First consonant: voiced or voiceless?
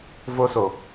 voiced